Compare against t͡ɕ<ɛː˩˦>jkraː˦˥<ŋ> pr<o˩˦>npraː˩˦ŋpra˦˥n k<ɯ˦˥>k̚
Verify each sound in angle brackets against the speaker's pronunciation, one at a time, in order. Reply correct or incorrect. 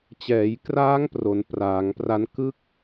correct, correct, correct, correct

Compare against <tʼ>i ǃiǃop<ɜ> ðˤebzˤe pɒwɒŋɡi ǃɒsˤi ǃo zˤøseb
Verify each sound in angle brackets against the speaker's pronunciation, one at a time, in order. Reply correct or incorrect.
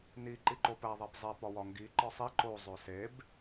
incorrect: n, incorrect: æ

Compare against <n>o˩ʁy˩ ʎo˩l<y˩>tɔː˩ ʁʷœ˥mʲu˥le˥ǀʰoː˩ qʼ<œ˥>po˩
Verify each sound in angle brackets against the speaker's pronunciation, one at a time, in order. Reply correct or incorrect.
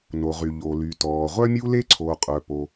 correct, correct, incorrect: œ˩

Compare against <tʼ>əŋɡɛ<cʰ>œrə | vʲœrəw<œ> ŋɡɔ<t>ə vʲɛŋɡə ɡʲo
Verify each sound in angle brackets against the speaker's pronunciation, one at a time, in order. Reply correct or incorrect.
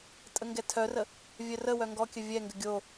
correct, incorrect: tʰ, correct, incorrect: kʲ

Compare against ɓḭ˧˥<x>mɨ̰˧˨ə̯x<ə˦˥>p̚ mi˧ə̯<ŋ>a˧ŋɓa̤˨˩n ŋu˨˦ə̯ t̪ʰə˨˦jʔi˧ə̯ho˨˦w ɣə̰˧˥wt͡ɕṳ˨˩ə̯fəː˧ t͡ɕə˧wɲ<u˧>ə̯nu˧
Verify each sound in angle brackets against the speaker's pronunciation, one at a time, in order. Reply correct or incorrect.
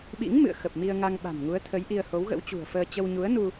incorrect: ŋ, incorrect: ə˨˩, correct, incorrect: u˨˦

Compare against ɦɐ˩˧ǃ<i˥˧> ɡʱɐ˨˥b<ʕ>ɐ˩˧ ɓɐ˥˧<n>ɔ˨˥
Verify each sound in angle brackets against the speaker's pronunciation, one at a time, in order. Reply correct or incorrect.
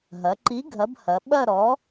incorrect: i˨˥, incorrect: h, incorrect: ɾ

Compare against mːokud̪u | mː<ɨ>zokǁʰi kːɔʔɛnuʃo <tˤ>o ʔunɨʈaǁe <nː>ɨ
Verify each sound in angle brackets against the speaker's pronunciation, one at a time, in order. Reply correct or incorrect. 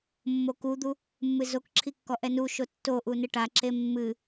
correct, incorrect: tː, incorrect: mː

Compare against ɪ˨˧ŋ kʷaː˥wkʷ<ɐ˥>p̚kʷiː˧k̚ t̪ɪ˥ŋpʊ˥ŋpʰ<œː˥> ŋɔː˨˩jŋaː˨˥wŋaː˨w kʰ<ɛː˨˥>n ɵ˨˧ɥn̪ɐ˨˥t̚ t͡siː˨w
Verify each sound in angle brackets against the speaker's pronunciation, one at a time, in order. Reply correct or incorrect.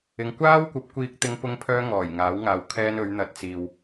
incorrect: ɐ˨˥, correct, incorrect: ɛː˥

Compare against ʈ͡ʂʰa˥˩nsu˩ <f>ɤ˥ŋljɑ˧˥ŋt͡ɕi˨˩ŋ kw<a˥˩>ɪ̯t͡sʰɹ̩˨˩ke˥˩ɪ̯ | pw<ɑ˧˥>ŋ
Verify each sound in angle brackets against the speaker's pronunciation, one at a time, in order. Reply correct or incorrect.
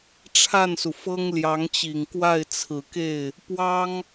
correct, correct, incorrect: ɑ˥

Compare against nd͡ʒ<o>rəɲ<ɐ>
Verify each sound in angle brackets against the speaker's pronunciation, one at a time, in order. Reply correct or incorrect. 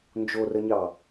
correct, incorrect: ɑ

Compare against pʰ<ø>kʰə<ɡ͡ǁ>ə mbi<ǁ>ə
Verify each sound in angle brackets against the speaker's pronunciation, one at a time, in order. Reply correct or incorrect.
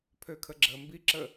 correct, correct, correct

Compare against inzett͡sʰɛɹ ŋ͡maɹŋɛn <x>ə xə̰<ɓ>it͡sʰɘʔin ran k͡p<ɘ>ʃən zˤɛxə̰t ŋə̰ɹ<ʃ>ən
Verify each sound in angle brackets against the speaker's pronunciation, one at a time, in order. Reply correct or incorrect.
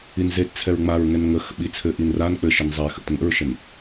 incorrect: ŋ, correct, correct, correct

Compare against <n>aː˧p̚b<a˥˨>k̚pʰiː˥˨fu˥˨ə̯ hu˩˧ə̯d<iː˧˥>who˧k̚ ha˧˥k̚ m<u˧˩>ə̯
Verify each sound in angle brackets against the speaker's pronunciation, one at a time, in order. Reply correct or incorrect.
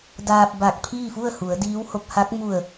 incorrect: d, incorrect: a˧˩, correct, correct

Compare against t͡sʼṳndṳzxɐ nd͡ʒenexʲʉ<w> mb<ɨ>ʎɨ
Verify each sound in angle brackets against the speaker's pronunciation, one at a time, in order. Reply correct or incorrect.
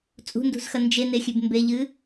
incorrect: b, incorrect: e

